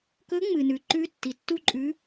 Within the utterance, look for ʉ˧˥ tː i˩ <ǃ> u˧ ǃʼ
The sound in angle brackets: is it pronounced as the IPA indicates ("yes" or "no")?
no